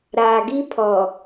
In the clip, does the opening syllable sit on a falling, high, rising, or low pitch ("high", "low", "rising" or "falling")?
low